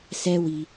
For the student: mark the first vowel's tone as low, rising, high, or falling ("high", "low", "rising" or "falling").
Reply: high